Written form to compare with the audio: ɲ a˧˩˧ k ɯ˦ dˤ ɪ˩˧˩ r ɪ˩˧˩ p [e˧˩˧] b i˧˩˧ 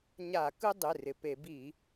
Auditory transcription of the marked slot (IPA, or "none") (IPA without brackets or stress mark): e˧˩˧